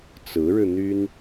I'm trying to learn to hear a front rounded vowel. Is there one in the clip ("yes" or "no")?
yes